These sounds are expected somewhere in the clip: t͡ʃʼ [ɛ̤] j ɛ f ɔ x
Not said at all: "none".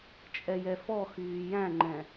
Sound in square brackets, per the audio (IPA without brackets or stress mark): ɛ